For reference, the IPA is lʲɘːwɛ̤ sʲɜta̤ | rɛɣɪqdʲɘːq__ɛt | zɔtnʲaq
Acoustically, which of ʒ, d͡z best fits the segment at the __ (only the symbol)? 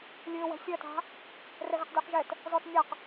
ʒ